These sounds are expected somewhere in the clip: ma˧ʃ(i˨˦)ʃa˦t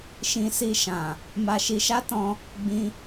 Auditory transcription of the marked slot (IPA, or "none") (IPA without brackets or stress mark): i˧